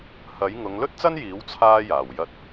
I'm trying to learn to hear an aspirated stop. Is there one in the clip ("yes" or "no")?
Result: yes